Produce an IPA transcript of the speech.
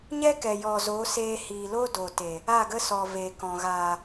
ɲ ɛ˦ k ɛ˨ j ɔ˨ z o˨˦ s eː˧ h iː˨ l o˦ d o˨ t e˨ | a˦˨ ɡ ə˦ s ɔ˨ v e˨ k ɔ̃˨ ɣ aː˨

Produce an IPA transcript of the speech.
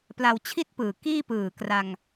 p l a˧ w t͡ɕʰ i˥˩ t̚ p ɯː˨˩ k iː˥˩ p ɯː˨˩ k r a˧ ŋ

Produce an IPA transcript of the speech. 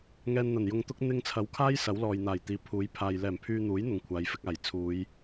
ŋ ɛː˧ n n̪ ɐ˨˩ n j ʊ˧ ŋ t̪ ʊ˥ k̚ n̪ ɪ˧ ŋ t͡sʰ ɐ˨˥ w kʰ aː˥ j s ɐ˨˥ w l ɔː˨ j n̪ aː˨˩ j t̪ iː˨˥ pʰ uː˨˥ j pʰ aː˨ j l ɛː˨˩ m pʰ yː˧ n̪ uː˨˥ j n̪ ʊ˨ ŋ kʷʰ aː˨˧ j f ɪ˨˥ k̚ aː˨˩ j t͡sʰ uː˨˧ j

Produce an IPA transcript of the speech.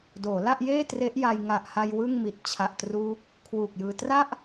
d oː˩˦ l a˥˩ ʔ j eː˥˩ t r e˦˥ ʔ j a˧ j ŋ a˨˩ ʔ h a˧ j w ɯ˥˩ ŋ m i˨˩ t̚ t͡ɕʰ a˨˩ ʔ t r uː˦˥ k̚ | kʰ w uː˨˩ k̚ j ɯː˧ t r a˥˩ ʔ

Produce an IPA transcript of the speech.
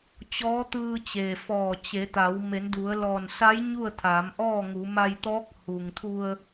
t͡ɕ ɔː˧˥ t̪ ɯː˧ t͡ɕ e˩ f ɔː˧˩ t͡ɕ e˩˧ t̪ a˩˧ w m e˩˧ n d u˩˧ ə̯ l ɔː˧˩ n s a˧˥ j ɲ u˥˨ ə̯ t̪ʰ aː˩˧ m ʔ ɔː˥˨ ŋ uː˩˧ m a˧ j t̪ ɔː˧˥ k̚ h u˩ ŋ t̪ʰ u˧ ə̯

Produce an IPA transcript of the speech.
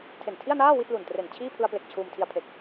tʰ e˨˩ n tʰ i˥˩ a̯ n aː˥˩ w i˥˩ t̚ l u˨˩ n t r e˨˩ n t͡ɕʰ iː˥˩ pʰ ɯ˧ a̯ p l e˨˩ k̚ t͡ɕʰ uː˧ m tʰ i˧ a̯ pʰ e˨˩ k̚

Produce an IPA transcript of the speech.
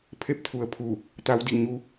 pʰ e˥˨ p̚ t̪ʰ u˩ ə̯ pʰ u˧˩ | t̪ a˧˥ w d i˧˩ ɲ u˧˥

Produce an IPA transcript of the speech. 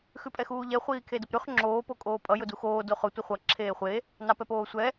x ʉ pʼ ɛ x uː ʎ ɛ χʷ iː kʰ e d ə p ɾ ʉ χ ŋ͡ǁ oː p o kʼ oː pʼ ʌ j ʊ d u x oː d o χ ʊ tʷ ə χʷ ʌ ǁʰ eː χʷ e | n ɑ p ɛ p oː sʷ ɛ

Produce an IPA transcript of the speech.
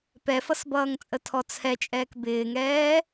p ɛ f ʌ s b ʌː ŋ t͡sʼ ə tʰ ɔ t͡sʰ ɛ t͡ʃʼ ɛː k b ɪː ŋ ɛː

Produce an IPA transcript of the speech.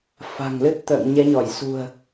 f a̤˨˩ ŋ l ɨ˦˥ t̚ t̪ ə̰ː˧˨ ŋ ɲ ɛ˨˦ ɲ ɔ˧˩ j s ṳ˨˩ ə̯

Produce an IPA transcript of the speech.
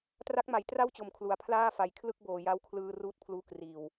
t r a˦˥ k̚ m a˩˦ j t r a˥˩ w t͡ɕ o˨˩ m kʰ l u˩˦ a̯ pʰ l aː˥˩ f a˨˩ j kʰ l ɯ˥˩ k̚ b oː˨˩ j a˦˥ w kʰ l ɯː˧ r uː˦˥ t̚ pʰ l uː˦˥ k r iː˨˩ w

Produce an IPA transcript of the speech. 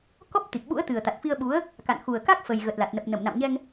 k ɔ˦˥ p̚ t̪ i˨˩ k̚ ɓ ṵ˧˥ ə̯ t̪ ɨ˨˩ ə̯ t̪ a˨˩ t̚ f i˧ ə̯ ɓ u˨˦ ə̯ | k a̰˧˨ n x u˨˩ ə̯ k a˦˥ k̚ f ə˨˩ j ɣ ə˨˩ t̚ l a˨˩ t̚ n ə˨˩ p̚ n ə˧˩ m n a̰˧˨ m ɲ ɛ˧ ŋ

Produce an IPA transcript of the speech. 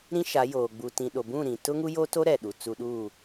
ɾ ĩ˦ ʃ a˨˦ j oː˨ ɡ͡b u˨ t ĩ˨ ɗ o˨ b ũ˦˨ ɾ ĩ˨ t ʊ˦ ŋ u˦ j o˦ t o˦ ɾ ɛ˨ ɗ u˨ t͡s u˦ ɗ uː˦˨

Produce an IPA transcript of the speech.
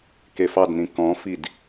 k e f ɑ d n ĩ k ɔ̃ f i d

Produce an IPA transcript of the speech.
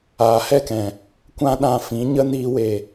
aː˨ h ɛ˦˨ k ɛ̃˨ | kʷ ã˧ ɗ ã˨ f ĩ˨˦ ɲ ə˦ n iː˧ w e˨

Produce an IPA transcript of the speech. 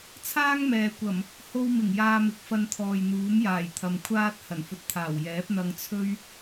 t͡sʰ aː˥ ŋ m ɛː˨ kʷ ɐ˨˩ m | h o˧ w m ɪ˨˩ ŋ j aː˧ m ɪ˨˥ k̚ f ɐ˧ n t̪ʰ ɔː˨ j n̪ uː˨˥ m j aː˨˩ j t̪ʰ ɐ˨ m kʷʰ aː˥ t̚ h ɐ˨˩ n f ɵ˧ t̚ t̪ʰ aː˨˩ w j ɛː˨˥ p̚ n̪ ɐ˧ ŋ t͡sʰ ɵ˥ ɥ

